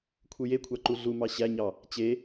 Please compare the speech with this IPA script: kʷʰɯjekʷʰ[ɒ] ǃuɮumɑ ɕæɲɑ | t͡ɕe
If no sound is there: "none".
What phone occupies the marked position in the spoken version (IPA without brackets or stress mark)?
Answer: ɑ